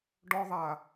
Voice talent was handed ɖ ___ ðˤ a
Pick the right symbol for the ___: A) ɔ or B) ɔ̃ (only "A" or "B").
A